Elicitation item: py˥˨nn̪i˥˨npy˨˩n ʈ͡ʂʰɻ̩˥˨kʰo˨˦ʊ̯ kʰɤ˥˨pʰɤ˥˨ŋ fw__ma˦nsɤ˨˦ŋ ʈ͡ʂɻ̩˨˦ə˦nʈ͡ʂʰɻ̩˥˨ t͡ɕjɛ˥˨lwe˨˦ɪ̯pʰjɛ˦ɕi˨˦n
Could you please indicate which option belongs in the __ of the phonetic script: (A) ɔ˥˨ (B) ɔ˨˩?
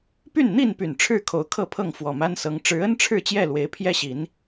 B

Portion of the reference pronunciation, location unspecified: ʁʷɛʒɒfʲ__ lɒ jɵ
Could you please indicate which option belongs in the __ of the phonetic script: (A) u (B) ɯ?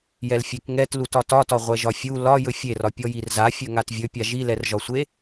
A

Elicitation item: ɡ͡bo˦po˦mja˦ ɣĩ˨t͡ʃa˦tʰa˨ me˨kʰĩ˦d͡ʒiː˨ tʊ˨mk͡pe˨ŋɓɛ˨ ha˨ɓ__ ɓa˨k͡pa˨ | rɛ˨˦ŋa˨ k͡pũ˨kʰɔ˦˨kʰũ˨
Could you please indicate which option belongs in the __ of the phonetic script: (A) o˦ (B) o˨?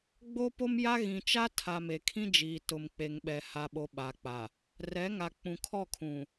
B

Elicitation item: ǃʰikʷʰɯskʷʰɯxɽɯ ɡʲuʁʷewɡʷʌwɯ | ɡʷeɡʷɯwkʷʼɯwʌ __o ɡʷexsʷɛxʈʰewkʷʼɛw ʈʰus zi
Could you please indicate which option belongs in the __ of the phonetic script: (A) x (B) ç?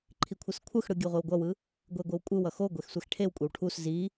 A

